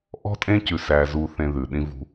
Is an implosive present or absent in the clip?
present